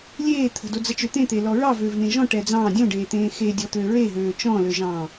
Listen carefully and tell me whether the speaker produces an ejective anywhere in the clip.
no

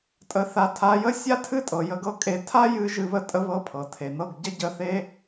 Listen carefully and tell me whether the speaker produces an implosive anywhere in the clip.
no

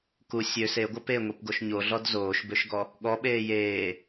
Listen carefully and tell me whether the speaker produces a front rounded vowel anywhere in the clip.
yes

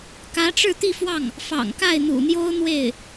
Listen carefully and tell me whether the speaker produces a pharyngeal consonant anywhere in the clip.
no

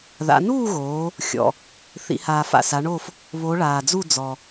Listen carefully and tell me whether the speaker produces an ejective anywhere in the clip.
no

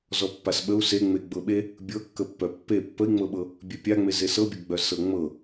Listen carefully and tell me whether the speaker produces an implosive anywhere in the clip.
yes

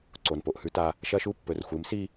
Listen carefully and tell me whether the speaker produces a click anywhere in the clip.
yes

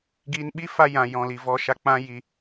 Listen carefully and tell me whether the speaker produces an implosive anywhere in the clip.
yes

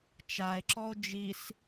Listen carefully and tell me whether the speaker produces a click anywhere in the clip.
yes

